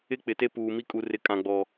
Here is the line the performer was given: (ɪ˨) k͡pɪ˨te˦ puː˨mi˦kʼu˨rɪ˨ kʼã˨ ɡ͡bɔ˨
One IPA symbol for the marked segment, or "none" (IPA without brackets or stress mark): ɪ˦